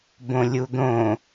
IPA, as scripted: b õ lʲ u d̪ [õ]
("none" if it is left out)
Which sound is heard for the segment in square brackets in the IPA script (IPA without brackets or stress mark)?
õ